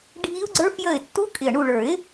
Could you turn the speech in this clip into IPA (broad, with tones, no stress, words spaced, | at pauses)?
ɖʱi˦˥ʊ̯ɡ͡ǀə˞˦˥fjə˦˨ɪ̯ tːu˦˥kʼɪ˨˩ə̯ɳu˦˨ ɭə˞˨˩˦ɪ̯